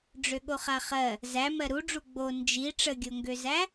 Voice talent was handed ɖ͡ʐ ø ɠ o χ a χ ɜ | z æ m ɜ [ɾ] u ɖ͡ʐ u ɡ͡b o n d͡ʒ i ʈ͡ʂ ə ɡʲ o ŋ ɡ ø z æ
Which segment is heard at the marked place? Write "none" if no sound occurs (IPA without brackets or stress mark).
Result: ɾ